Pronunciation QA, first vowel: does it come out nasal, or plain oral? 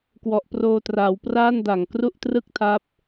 oral